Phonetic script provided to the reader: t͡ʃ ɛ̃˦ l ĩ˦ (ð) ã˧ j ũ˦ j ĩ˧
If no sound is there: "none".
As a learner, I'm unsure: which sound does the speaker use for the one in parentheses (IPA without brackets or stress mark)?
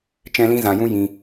z